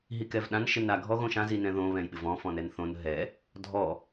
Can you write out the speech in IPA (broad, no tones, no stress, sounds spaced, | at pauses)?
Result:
ɦ i k ɛ v ɗ ã n ʃ ɪ n a ɡʱ ɔ ɣ õ ʃ ã z i n ɛ̃ ð õ β ɛ̃ j ɓ ɪ v ɔ̃ f ɔ̃ n ɛ n θ õ n ɦ ɛ | dʱ ɔ